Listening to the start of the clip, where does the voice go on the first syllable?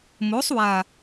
rising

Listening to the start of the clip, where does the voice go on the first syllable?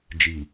low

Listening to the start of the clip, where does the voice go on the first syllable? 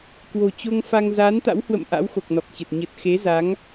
low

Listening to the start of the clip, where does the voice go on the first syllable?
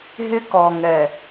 high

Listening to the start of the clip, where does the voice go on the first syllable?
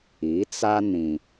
rising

